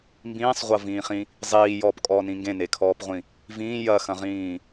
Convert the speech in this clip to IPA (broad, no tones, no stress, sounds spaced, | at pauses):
m b ĩː sˤ ʁʷ ɐ v ĩː χ ĩ | zˤ iː j ɔː p kʼ ɔː n ĩ ŋ ɡ ẽ n e kʰ ɔː p ʁʷ ĩ | v ĩː j ɐ x ɐ̃ ʁ ĩː